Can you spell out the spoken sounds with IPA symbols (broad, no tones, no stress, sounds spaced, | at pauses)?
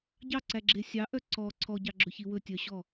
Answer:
ɟ ɑ ǀ æ ɡ͡ǁ e sʲ ɑ ʔ œ ǀ ɔ ǀʰ ɔ ɟ ɑ ɡ͡ǁ ɵ ç i w ɵ tʲ œ ɕ ɔ